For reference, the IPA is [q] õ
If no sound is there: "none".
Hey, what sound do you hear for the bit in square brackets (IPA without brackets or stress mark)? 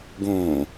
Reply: ɡ